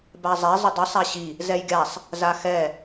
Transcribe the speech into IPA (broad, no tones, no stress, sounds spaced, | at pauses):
b a zˤ ɛ zˤ ə dˤ i sˤ a ɕ i | z ɛ j ɡʲ a sˤ | z a x ɛ